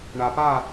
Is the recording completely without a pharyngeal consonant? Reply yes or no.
yes